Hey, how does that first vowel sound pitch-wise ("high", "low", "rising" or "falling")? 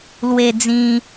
high